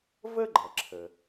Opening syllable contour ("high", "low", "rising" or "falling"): high